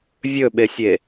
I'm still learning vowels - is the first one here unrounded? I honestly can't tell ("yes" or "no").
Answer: no